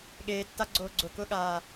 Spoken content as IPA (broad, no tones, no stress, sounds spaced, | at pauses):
ɠ eː tː a ɡ͡ǀ oː ɡ͡ǀ ʊ k ʊ ɠ aː